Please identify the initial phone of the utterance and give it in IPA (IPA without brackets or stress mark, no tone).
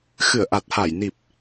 x